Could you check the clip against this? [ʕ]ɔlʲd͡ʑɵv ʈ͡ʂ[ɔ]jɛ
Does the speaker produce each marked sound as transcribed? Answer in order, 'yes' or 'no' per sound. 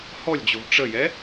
no, no

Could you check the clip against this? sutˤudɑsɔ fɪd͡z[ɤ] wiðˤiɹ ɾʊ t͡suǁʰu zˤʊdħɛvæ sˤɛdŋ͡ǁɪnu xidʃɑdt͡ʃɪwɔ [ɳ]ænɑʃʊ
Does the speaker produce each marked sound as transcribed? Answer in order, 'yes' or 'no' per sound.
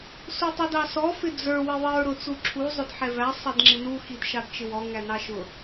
no, no

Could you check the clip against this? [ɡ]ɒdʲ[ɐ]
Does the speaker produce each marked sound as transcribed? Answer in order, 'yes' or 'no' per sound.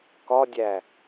no, no

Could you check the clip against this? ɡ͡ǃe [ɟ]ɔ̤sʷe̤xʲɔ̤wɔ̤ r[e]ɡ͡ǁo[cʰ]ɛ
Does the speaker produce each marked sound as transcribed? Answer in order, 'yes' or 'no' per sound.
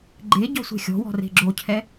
yes, no, yes

